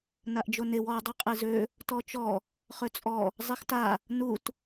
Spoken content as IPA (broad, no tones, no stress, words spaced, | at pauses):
naʔd͡ʒonew ɔ dˤœqʼezø | tɔt͡ʃɔ | χøt͡sʼɔ | zˤexta | nut